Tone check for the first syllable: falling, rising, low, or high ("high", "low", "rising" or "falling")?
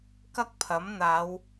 high